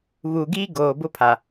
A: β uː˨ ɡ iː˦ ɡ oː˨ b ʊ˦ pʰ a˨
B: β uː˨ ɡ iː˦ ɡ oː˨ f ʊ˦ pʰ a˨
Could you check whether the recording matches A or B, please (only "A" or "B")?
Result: A